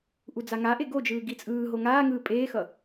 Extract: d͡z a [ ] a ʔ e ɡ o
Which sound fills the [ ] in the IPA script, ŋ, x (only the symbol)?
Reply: ŋ